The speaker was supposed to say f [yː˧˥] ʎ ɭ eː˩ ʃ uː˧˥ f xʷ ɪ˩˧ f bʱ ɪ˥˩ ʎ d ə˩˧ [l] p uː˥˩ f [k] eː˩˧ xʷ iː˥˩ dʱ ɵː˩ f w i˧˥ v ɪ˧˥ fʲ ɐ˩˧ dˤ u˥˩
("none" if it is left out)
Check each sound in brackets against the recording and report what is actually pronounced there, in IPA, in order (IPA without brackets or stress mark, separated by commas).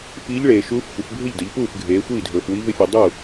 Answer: iː˧˥, ʎ, ɡʱ